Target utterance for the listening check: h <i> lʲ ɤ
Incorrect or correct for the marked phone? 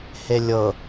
incorrect: e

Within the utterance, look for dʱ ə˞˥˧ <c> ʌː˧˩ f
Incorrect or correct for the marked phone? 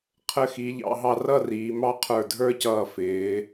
correct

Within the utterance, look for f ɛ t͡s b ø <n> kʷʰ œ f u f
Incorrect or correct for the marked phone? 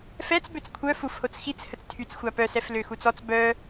incorrect: t͡s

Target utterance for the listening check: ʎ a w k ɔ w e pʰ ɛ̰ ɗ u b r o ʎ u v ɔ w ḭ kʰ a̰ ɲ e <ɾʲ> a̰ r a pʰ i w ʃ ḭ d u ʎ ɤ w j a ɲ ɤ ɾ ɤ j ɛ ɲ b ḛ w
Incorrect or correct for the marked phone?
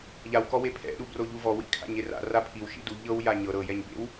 incorrect: r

